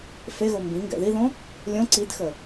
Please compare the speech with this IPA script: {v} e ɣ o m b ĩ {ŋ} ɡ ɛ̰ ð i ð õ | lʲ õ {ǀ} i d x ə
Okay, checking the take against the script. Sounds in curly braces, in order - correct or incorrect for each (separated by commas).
incorrect, correct, correct